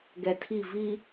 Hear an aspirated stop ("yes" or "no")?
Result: yes